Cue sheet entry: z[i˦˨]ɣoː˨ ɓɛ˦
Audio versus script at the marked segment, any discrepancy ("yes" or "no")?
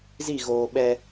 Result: no